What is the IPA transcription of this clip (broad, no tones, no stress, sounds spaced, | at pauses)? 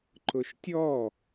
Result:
ǃ ʊ ʃ tʲ ɔ